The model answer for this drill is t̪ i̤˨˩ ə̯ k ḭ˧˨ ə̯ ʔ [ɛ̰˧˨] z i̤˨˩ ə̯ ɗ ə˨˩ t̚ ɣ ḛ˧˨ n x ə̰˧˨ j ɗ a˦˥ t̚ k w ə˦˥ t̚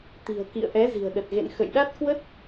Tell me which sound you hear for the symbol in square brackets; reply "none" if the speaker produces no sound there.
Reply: ɛ˨˦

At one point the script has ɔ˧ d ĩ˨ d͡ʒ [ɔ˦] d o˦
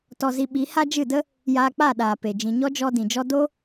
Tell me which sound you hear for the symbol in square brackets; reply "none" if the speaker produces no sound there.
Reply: ɔ˦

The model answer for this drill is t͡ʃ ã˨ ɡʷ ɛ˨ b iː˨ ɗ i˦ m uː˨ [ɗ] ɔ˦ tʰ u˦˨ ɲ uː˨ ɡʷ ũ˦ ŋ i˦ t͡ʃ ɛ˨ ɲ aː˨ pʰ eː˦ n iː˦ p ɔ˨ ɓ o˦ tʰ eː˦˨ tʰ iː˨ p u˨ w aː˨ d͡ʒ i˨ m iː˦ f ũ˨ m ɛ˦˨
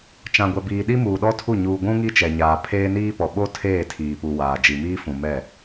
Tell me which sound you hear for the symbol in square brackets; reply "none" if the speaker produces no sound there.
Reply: ɗ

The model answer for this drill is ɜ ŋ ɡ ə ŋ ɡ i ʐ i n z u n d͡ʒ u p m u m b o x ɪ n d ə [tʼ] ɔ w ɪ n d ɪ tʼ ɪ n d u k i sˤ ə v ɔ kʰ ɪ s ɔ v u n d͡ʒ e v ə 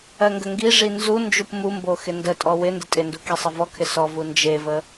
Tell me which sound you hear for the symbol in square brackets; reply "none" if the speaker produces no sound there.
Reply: tʼ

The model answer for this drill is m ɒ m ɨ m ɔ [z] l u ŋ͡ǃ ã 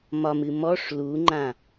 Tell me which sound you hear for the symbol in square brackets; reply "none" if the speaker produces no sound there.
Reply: ʂ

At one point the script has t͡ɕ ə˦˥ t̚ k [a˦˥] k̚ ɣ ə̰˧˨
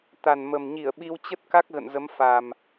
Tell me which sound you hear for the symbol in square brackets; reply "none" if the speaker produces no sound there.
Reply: a˦˥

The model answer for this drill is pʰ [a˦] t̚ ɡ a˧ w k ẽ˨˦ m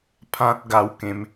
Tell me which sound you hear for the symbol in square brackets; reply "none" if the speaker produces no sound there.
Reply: ã˦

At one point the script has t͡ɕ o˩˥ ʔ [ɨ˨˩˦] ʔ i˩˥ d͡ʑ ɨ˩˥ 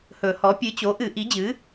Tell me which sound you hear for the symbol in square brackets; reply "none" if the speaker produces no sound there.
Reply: ɨ˨˩˦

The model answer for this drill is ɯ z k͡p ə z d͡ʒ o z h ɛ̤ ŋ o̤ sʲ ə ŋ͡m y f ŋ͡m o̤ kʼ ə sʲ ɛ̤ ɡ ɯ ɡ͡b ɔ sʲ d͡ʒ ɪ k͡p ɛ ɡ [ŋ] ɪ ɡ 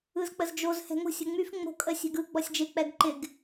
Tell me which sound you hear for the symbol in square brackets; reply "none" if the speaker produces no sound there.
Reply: ǃ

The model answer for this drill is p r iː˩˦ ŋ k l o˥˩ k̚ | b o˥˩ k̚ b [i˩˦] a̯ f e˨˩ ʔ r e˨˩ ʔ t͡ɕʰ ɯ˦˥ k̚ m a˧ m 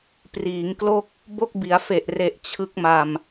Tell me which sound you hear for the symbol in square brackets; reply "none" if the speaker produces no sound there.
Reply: i˩˦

